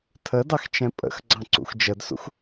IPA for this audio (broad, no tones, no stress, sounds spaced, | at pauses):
tʰ ə d ɑ x t͡ʃ ɛ̃ pʼ ə̰ x ɡ͡ǀ ɑ̃ ǀ ṵ x d͡ʒ ə d s ṵ x